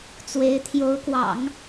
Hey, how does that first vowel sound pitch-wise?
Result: rising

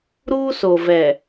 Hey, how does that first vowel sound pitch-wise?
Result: high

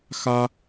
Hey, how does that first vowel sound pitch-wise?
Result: high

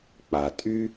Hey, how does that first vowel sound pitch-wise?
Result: low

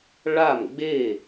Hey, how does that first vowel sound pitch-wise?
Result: falling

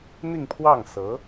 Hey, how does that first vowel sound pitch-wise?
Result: falling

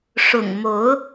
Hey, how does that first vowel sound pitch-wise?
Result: low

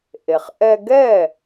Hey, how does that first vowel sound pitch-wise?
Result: low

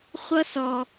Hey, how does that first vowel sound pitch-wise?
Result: high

